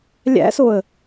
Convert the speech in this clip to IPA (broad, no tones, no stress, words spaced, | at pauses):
lʲæ̰soə̯